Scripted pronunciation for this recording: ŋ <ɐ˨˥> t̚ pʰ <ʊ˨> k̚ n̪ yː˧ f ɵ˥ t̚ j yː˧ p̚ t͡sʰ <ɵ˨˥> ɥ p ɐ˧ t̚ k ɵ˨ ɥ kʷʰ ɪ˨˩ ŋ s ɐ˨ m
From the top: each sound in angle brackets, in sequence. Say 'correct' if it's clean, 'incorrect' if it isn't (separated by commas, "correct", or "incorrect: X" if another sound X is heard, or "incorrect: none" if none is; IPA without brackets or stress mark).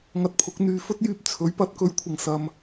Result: incorrect: ɐ˧, incorrect: ʊ˨˥, correct